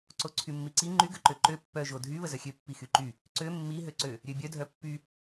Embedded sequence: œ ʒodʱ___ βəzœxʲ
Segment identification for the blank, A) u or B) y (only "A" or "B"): B